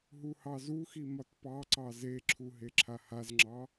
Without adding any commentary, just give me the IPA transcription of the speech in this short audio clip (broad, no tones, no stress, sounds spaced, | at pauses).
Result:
ɦ u h ɑ z u x i m ɒ t p ɑ ǀ ɑ z e ǁʰ u ɦ e ǁʰ a h a z ŋ͡ǁ ɑ